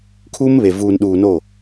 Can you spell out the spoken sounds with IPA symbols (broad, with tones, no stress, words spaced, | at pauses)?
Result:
kʰuː˦mβe˨ vuː˨nɗuː˨no˦˨